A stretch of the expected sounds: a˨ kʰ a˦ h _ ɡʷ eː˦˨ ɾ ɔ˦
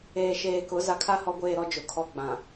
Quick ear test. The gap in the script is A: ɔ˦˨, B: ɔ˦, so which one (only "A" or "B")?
B